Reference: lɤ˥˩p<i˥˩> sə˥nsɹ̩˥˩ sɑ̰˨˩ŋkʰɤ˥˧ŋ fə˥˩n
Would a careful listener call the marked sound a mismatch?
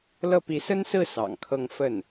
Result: yes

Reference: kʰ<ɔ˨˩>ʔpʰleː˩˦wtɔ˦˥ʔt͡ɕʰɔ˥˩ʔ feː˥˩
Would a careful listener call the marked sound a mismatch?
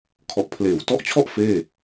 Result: no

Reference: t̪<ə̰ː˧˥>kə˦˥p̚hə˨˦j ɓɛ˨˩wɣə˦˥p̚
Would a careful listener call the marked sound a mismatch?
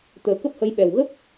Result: yes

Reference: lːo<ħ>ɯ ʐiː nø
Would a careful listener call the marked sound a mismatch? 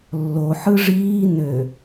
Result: no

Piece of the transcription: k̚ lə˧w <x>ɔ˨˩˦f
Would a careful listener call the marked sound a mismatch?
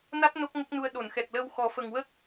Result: no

